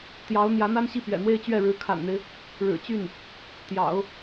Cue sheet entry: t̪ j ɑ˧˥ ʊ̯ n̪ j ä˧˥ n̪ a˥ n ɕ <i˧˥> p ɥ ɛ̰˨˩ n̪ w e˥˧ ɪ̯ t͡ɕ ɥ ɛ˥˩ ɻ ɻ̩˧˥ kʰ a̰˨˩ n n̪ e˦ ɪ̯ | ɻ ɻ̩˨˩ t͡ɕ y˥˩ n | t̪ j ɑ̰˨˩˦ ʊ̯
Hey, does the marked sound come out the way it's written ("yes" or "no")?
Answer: no